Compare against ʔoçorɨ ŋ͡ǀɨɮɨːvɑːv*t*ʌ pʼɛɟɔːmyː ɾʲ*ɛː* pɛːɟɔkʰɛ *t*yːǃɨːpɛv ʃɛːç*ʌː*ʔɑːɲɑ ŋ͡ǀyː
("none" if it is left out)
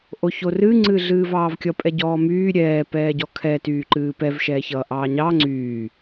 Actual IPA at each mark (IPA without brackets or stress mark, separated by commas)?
kʲ, ɛː, t, ʌː